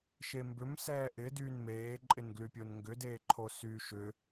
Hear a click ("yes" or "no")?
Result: yes